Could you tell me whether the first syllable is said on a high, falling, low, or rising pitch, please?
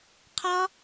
high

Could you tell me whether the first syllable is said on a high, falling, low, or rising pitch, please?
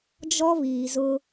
high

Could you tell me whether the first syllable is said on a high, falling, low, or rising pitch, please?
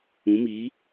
rising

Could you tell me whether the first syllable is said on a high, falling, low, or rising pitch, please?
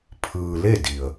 low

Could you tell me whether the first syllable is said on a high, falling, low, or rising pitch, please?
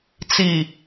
low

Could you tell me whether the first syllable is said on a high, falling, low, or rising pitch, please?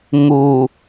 low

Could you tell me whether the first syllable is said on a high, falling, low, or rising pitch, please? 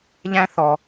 high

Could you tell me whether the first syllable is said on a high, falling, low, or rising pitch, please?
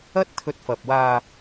high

